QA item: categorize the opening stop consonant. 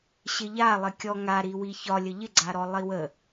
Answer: plain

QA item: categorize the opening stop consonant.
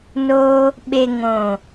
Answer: implosive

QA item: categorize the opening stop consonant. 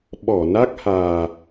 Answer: implosive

